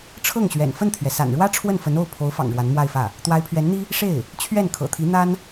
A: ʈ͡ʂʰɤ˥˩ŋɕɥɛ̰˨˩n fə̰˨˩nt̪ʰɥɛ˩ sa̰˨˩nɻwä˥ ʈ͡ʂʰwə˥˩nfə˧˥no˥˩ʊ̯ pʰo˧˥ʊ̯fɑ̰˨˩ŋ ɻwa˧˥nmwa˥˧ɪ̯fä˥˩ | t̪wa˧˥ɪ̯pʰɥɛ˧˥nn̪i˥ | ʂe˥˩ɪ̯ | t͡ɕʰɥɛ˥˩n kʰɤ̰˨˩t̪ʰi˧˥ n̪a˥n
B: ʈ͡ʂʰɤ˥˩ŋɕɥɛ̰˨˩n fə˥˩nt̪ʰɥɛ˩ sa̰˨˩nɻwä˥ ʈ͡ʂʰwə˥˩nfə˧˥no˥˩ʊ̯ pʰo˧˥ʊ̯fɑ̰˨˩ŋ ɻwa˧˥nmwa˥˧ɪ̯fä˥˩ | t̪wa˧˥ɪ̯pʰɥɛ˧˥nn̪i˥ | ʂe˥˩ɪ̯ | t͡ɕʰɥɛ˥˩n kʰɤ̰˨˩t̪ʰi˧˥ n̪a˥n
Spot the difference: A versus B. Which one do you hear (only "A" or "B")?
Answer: B